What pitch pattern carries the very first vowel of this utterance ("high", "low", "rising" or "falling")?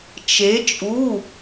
rising